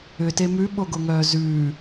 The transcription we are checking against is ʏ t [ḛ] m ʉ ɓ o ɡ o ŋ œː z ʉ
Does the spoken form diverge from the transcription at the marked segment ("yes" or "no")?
yes